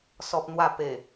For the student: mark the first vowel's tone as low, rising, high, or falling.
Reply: high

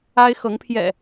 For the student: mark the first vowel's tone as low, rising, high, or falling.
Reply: high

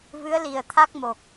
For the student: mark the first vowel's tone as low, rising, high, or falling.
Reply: rising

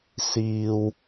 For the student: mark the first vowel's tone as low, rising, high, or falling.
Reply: low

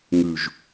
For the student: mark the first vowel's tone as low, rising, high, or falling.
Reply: low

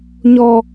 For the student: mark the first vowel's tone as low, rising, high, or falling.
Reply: high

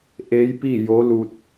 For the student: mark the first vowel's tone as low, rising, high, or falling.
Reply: rising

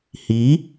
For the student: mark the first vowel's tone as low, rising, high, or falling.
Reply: rising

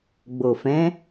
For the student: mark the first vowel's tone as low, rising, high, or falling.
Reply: low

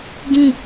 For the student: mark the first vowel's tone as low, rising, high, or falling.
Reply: falling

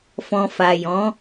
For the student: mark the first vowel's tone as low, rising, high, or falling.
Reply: low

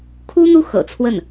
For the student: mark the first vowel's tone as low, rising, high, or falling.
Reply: high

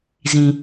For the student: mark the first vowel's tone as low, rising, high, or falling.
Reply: low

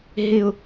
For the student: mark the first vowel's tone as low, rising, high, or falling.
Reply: high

